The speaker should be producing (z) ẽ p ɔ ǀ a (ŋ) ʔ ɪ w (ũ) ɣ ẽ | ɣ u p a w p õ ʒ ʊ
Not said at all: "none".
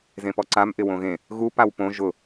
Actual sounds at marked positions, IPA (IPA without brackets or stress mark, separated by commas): z, m, õ